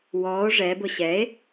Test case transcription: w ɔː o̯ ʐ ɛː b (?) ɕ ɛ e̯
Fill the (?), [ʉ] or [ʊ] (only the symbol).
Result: ʊ